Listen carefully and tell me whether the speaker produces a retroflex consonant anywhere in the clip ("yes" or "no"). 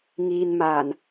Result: no